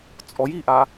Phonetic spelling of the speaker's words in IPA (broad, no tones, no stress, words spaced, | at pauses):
t͡sʼɔj iʔa